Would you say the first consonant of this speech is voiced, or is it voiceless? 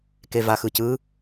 voiceless